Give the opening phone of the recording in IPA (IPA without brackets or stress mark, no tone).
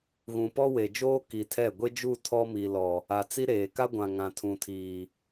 ɣ